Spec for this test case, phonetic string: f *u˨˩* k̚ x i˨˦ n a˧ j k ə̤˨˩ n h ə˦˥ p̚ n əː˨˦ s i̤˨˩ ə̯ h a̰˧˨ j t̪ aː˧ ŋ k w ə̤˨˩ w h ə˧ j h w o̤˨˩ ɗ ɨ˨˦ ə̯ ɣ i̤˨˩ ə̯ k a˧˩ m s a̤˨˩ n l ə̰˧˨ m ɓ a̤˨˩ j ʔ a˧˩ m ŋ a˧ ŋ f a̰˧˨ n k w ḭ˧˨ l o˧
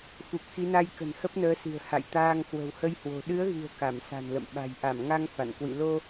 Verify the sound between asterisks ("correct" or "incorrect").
correct